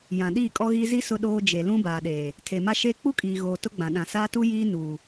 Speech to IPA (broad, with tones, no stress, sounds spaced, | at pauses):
j ã˨ ɗ iː˦˨ kʼ ɔ˦ ɣ iː˦ z i˦ s ʊ˦ ɗ oː˦ d͡ʒ e˨ l ũ˦ b aː˨ ɗ eː˨ | tʰ e˨ m a˦ ʃ eː˦ k͡p u˦ kʼ iː˨ ɣ oː˨ t ʊ˦ ɡ͡b ã˨ ɗ ã˨ s aː˦ t u˦ j iː˦ n uː˨